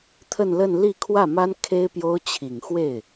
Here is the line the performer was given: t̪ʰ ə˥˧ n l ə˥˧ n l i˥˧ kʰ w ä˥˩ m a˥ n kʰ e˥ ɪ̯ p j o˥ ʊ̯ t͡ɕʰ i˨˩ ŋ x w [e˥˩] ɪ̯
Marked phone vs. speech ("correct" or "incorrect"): correct